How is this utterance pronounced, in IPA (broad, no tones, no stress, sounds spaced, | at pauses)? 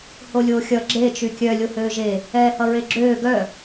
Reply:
h o lʲ oː xʲ ʌ ɡ͡ǁ e t͡ʃ y kʲ œ lʲ o h øː ʒ e | ɛː h ʌ ɹ e ɡ͡ǁ øː ɡ œ